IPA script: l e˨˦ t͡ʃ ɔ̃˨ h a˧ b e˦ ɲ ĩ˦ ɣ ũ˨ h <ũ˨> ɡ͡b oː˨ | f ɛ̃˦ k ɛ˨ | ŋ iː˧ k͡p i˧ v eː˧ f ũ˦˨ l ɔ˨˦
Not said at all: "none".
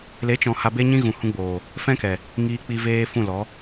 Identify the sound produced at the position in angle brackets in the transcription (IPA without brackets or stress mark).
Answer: ũ˧